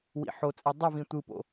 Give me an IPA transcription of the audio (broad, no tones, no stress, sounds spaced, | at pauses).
w ḭ ħ o t͡sʼ ɛ dˤ u v ĩ tʷ ɯ p o̰